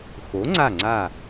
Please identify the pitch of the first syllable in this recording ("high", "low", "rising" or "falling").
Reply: rising